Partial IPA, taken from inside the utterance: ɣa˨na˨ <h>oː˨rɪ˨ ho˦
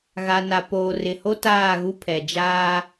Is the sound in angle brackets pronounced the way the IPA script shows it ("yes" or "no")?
no